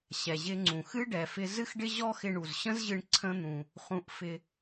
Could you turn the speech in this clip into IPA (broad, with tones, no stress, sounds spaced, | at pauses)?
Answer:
ɕ ɛ˩ ʑ ɪ˧ ŋ͡ǀ ũ˩ x ɨ˥ ɖ ɛ˩ f ɪ˧ z ɨ˥ x ɖ ɪ˥ ʑ ɔ˥ x ɪ˧ ɳ u˩ z ɕ ə̃˥ z ʑ ɨ˧ ɳ ǀʰ ə̃˧ n̪ ũ˩ | χ ũ˧ ʔ f ɪ˧